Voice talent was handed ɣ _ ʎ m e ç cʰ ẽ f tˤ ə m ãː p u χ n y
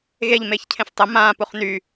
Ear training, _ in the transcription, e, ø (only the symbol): e